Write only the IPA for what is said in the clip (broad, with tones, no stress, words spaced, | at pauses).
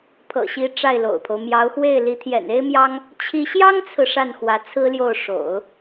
pʰɤ̰˨˩ɕi˧˥ ʈ͡ʂa˥˩ɪ̯lo̰˨˩ʊ̯pʰo˦ʊ̯ mjɑ˧˥ʊ̯xwe˥˩ɪ̯li˧˥ t̪ʰjɛ̰˨˩ne˥ɪ̯mjɑ˥ŋ | t͡ɕʰi˥ ɕjɑ˥ŋt͡sʰɹ̩˨ ʂa˥˩nxwä˧˥t͡sʰɹ̩˥ljo˥˩ʊ̯ ʂo̰˨˩˦ʊ̯